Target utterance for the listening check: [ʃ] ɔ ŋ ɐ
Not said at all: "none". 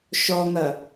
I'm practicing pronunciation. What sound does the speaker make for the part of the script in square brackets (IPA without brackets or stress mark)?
ʃ